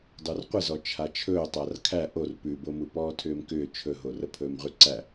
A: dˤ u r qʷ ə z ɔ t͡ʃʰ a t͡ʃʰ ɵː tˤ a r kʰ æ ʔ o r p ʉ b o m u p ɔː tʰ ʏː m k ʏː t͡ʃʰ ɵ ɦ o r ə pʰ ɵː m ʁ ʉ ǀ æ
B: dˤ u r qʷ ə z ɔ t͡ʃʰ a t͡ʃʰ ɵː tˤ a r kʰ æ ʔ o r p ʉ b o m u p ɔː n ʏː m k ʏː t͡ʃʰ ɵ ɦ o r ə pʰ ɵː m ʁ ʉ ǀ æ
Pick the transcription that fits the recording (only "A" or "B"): A